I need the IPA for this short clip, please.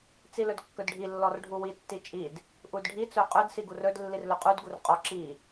t͡silɵdkːɵdɖʱi lːɔrɖʱuwi tːit͡ʃʼid | ʔudɖʱi t͡sɵqʼɵd siɡurɵd lːirlɵqʼud ɡurqʼɔ ǁi

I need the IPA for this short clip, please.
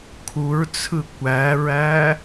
kʰuɹt͡sʰɯ kʷæɹæ

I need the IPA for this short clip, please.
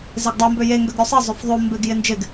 zɪɡdˤo mbøje ŋɡøɡɾʲosˤe zˤøfðˤo mbɪɡ jɪnd͡ʒɪɡ

